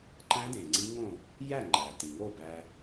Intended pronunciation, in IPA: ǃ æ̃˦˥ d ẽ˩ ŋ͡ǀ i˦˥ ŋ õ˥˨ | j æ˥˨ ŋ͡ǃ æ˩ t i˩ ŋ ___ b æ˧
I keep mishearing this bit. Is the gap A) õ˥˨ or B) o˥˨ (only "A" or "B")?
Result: B